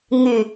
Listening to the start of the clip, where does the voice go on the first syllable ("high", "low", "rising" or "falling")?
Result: low